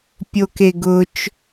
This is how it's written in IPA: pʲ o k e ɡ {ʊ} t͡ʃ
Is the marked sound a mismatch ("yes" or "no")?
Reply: no